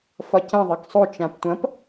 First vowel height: low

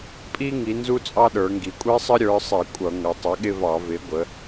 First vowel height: high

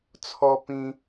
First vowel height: mid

